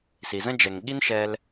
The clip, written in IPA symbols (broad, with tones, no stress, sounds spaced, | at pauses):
s i˨ z ə̃˥ d͡ʒ ɛ˨ ŋ ɠ i˥ n ʃ ɛ˦ l